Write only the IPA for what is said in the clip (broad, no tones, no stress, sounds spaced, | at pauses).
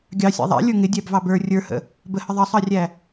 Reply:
ɡʲ ɑ sʲ æ̰ ðˤ æ̰ lʲ ə˞ ŋ ɪ dʲ æ b v ɑ b ə˞ rʲ ə˞ h ə̰ | b ə h ə ðˤ ʌ sˤ ɑ rʲ æ